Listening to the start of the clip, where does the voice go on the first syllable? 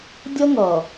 high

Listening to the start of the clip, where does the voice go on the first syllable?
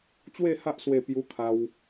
falling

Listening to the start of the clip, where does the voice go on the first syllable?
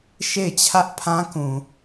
falling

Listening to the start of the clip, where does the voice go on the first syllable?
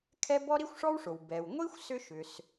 high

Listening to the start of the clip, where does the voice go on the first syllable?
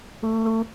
high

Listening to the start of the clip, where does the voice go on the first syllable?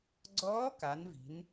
rising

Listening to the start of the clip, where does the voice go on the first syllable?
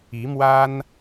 rising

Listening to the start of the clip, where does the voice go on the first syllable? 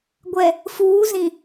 low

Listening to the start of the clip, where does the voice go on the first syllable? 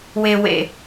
low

